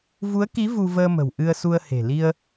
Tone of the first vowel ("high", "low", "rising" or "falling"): rising